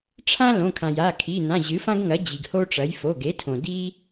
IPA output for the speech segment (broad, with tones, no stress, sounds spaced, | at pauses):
ʈ͡ʂʰ ã˥ l õ˩˧˩ kʰ ã˩ j a˩˧˩ kʰ i˩˧˩ n ã˩˧˩ ʑ ɨ˩˥ f ã˥ ɡ ŋ ɐ˩˥ d͡ʑ i˩ ɡ h o˥ ʈ͡ʂ ɐ˩˥ j f o˩˧˩ ɡ e˩˥ tʰ õ˩ d i˥